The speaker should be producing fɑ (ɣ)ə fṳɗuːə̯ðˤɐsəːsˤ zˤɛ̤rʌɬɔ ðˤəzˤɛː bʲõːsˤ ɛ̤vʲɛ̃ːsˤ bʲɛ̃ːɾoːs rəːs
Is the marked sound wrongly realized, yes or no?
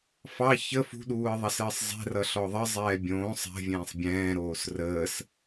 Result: yes